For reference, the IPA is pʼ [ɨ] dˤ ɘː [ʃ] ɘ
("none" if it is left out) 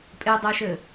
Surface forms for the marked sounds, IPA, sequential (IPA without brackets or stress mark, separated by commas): e, ʃ